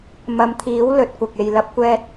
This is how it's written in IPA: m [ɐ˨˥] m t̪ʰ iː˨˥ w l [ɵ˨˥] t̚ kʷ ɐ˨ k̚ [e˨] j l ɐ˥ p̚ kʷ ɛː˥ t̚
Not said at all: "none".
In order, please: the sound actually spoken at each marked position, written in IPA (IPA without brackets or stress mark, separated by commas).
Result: ɐ˨˧, ɵ˨, e˨